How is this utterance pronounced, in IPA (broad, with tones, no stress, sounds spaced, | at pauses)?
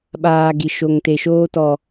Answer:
ɓ aː˨ ɡ i˨ ʃ o˨ ŋ t e˨ ʃ oː˦ t ɔ˨